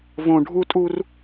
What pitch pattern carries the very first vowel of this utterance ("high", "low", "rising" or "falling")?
low